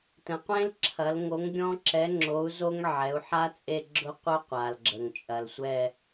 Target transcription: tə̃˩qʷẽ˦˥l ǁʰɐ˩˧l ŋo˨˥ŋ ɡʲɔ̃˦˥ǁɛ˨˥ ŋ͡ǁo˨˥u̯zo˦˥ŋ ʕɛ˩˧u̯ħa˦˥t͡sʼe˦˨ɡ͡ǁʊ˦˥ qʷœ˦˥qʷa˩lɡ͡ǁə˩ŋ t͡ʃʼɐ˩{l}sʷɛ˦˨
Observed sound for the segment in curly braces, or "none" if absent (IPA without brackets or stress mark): l